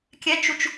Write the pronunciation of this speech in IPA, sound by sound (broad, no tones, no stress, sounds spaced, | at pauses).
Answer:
kʲ ɛ t͡ʃ u t͡ʃ